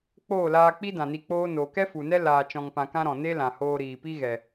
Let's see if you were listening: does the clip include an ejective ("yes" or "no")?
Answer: no